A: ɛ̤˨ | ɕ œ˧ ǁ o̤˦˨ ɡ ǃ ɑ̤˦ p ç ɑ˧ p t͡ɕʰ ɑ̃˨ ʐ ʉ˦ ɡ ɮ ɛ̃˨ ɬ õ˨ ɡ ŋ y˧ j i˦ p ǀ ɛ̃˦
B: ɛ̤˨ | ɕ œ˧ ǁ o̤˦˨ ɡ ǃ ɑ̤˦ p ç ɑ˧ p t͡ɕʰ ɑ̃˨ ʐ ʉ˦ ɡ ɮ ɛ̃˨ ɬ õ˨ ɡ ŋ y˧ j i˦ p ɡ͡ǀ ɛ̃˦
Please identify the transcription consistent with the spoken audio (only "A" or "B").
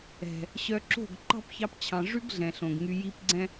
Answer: B